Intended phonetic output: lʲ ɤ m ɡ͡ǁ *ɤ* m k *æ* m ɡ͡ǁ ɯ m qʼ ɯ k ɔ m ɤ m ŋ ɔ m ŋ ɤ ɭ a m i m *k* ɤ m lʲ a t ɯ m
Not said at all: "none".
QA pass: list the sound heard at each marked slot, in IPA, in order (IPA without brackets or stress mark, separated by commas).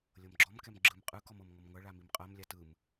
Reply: ɔ, ɛ, qʼ